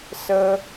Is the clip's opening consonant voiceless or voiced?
voiceless